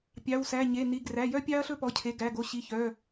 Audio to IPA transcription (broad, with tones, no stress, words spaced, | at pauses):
pʲɑ˩˧˩wsæ˩˧˩ ɲe˩˧˩ni˩˧˩ ɡræ˩˧˩jœ˦pʲɑ˦ɐ̯ɬɵ˦ pɔ˩˧˩cʰe˩˧˩ ɡæ˩˧˩ɡo˩˧˩ɕi˩˧˩ çœ˩˧˩